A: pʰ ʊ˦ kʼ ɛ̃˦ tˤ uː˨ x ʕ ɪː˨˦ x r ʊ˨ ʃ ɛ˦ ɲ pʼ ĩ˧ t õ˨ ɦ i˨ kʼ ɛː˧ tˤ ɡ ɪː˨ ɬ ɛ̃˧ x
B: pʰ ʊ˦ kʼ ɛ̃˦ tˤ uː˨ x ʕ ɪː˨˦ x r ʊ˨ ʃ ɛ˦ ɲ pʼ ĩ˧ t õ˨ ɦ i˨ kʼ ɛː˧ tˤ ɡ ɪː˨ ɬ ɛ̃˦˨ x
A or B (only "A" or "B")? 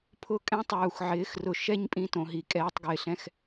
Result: A